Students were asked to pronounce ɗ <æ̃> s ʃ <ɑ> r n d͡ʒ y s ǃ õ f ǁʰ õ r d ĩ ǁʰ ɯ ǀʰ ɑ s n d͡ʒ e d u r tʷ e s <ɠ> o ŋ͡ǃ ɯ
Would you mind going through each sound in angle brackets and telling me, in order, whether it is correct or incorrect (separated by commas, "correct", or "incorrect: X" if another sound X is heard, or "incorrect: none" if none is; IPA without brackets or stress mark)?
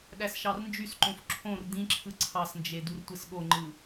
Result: incorrect: æ, correct, correct